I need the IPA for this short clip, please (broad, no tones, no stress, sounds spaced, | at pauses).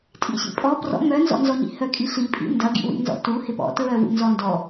tʼ ḭ ɕ ḭ pʼ ɔ p r ɔ̰ m œ n z ɔ̰ n z ɔ ɲ ḭ h œ kʼ i ɬ i pʼ ḭ n d ɐ ɡ ḭ w ḭ n z ɔ̰ t u h ɪ p ɔ̰ t ɹ œ w ṵ n z ɔ n d ɔ